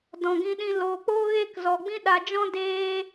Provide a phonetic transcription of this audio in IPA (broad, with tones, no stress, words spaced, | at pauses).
dɔ̃˨ɡĩ˧ɗĩ˧ loː˨k͡poː˦ ɣeː˦kzɔ˨ɡ͡bĩ˦ ɗa˨d͡ʒɔ̃˦ deː˦